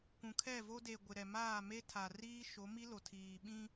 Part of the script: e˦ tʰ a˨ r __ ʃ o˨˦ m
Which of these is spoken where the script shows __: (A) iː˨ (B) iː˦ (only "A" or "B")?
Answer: B